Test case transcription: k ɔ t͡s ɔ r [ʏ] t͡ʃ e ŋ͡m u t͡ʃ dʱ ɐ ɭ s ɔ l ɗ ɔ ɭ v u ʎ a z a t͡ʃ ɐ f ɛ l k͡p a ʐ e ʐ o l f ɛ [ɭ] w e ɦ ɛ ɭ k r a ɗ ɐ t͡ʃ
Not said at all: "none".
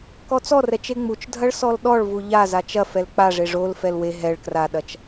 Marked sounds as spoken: ɛ, l

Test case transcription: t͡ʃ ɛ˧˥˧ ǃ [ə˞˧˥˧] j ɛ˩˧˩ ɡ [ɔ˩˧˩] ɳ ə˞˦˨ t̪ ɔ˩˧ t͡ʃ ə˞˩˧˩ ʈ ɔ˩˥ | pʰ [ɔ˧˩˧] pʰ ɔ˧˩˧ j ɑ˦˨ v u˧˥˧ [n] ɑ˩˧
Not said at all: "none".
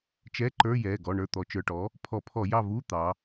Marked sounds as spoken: ə˞˧˥˧, ɔ˩˧˩, ɔ˧˩˧, t̪

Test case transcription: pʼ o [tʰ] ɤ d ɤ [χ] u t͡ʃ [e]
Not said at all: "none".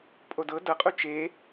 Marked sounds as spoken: d, qʼ, e

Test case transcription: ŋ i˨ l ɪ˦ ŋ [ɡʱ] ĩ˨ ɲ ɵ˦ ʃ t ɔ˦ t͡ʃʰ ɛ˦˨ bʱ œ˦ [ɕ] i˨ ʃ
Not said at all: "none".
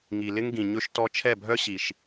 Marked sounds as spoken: ɡ, ɕ

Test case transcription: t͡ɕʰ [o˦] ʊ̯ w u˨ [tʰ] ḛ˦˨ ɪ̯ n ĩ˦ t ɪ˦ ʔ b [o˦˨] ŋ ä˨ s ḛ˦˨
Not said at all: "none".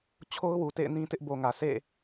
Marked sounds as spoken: o˦, t, o˨

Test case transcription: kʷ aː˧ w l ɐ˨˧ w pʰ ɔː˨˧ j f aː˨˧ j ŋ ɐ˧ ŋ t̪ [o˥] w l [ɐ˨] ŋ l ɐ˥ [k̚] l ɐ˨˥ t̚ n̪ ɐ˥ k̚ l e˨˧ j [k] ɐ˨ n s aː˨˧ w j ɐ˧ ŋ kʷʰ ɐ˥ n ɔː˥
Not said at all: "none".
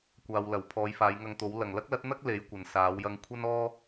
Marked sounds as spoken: o˨˧, ɐ˨, k̚, kʷ

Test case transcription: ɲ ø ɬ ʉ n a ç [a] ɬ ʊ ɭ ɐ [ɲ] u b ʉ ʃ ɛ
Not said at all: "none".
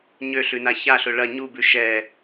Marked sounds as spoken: a, ɲ

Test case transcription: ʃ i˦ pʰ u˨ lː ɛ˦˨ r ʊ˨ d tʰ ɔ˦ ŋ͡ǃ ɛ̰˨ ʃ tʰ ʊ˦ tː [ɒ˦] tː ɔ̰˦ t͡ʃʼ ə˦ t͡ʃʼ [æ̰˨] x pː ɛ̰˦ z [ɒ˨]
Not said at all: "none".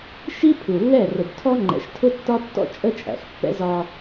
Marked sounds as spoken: ɒ˦, æ̰˨, ɒ˦

